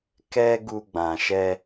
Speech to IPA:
k ɛ˦ ɡ u˧ ɡ͡b ã˨ ʃ ɛ˧

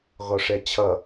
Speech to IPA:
ɣ ɔ ʂ ɛ t͡ɕʰ ʌ

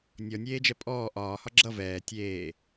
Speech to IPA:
nʲ ɔ nʲ eː d͡ʒ ɛ pʼ ɔː ʔ ɒː h ɒ ɡ͡ǁ ʌ v ɛː tʲ eː

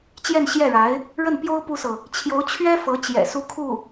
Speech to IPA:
t͡ɕ j ɛ˥˧ n ɕ j ɛ˥˩ ɻ a˧˥ ɪ̯ | ɻ ə˥˩ n p j o˥ ʊ̯ p u˥ s ɤ˨ | t͡ɕʰ j o˧˥ ʊ̯ t͡ɕʰ ɥ ɛ˥ f ɤ˧˥ t͡ɕ j ɛ̰˨˩ s u˥ kʰ u˥˩

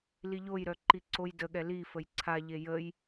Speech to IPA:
l i ʎ o j ɾ œ ǃ i ǀ o j d ə ɠ ɛ l i f ə j ǀʰ a ʎ e j ə j

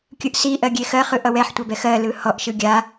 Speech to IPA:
kʲ ɯ ʔ s i ʔ ɜ ɡʲ e x ɜ χ ɯ ʔ ʌ w ɛ ħ tʷ a b ɛ x ɜ l ɯ h ɔ ʔ ʃ ɯ ɡʲ a

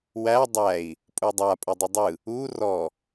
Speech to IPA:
w æ dˤ æ i̯ | pʼ u dˤ a pʼ ɯ dˤ ɯ dˤ ɯ | u r ɔ

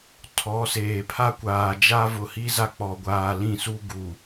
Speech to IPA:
tʰ ɔ˨˦ s eː˨ pʰ a˦ kʷ aː˨ d͡ʒ a˦ v ʊ˨ h i˦ z a˦ k͡p ɔ˨ ɡʷ aː˨ l ĩ˦˨ s u˦ ɡ u˨

